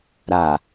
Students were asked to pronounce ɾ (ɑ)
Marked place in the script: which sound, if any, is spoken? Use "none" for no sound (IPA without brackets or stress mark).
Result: a